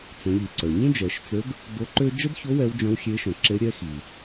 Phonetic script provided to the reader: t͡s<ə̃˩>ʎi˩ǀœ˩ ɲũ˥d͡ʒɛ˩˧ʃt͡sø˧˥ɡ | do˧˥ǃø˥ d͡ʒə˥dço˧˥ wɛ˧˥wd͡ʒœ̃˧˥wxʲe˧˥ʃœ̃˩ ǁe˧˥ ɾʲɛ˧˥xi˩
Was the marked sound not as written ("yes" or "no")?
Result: yes